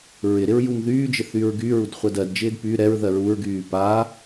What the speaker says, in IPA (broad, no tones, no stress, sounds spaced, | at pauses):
ɹ ɪ ɾ ɪ ɹ j u m ð yː d͡ʒ ɪ θ y ɹ ɡ y ɹ u d χʷ ɜ d ɜ d d͡ʒ ɪː d p y ɾ ɛ ɹ ð ɜ ɹ u ɹ ɡ yː p a